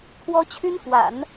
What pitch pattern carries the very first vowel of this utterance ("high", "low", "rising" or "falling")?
high